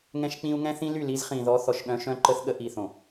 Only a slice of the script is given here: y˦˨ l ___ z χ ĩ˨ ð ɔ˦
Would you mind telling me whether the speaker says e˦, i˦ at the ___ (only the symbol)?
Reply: i˦